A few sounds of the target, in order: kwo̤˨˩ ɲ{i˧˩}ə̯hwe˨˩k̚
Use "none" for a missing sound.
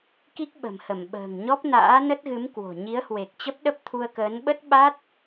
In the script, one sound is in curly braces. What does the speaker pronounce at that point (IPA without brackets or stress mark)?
i˨˦